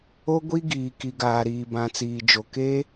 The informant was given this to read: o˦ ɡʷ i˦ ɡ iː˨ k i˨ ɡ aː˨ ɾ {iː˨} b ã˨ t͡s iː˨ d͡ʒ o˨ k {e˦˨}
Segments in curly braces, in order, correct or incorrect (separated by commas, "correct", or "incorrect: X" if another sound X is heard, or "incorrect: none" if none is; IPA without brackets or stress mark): correct, incorrect: e˦